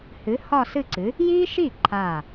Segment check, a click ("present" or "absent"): present